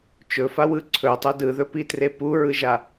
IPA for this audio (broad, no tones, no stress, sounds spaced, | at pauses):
t͡ʃ ɵ f a w ɯ ǀʰ ɵ tˤ ɵ d ɯ ð ɵ p i t r e p u ɹ ɯ ʒ a